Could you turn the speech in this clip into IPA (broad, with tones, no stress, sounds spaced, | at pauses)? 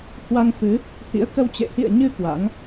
h w a˧ ŋ f ɨ˨˦ | h ḭ˧˥ ə̯ k ə˧ w t͡ɕ ḛ˧˨ h ḭ˧˨ ə̯ ɲ ɨ˧ k w a̰˧˥ ŋ